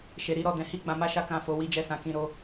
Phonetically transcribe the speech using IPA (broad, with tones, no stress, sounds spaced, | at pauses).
ʃ e˨ ɾ i˧ ɾ ɔ˨ d ɛ̃˨˦ h i˦˨ ɡ͡b ã˨˦ m a˦ ʃ a˦ k ã˦˨ f o˧ w i˦ d͡ʒ ɛ˦˨ s ã˧ k ĩ˧ ɾ o˧